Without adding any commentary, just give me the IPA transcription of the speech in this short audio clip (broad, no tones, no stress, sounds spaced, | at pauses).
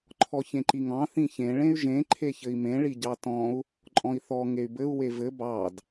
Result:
ǃʰ ɔ ç ẽ ǃ i ŋ ɑ̃ θ ĩ ç ẽ ɭ ẽ y̯ ʒ ẽ ǃʰ e ç ɘ i̯ m ẽ ɭ i ɟ ɑ t ɔ̃ u̯ | ǃʼ ɔ̃ i̯ θ ɔ ŋ e y̯ b ɘ u̯ w e v ɘ b ɑ d